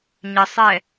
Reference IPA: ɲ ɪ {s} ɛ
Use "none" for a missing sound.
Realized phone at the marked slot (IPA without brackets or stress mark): sˤ